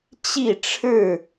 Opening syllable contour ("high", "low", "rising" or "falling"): falling